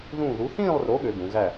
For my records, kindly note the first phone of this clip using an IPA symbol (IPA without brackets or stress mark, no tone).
ð